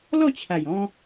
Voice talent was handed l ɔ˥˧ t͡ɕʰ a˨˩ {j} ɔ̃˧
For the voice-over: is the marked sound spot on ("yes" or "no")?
yes